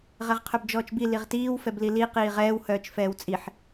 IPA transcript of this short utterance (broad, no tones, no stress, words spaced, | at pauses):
ʁɛʁqʰœbd͡ʒɔːt͡ʃbi liʁtiːw fɛblili qiːʁɛːw hœːt͡ʃfɛːwt͡sʼiħ